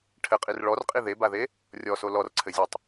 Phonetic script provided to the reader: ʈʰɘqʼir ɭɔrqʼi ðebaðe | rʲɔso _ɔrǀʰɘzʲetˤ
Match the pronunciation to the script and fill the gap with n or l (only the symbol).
l